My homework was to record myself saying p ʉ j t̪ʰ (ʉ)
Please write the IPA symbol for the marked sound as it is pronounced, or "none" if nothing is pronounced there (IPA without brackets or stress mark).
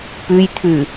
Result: ʉ